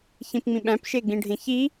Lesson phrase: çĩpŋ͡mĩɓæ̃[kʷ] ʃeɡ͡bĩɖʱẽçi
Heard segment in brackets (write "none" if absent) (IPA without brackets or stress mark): p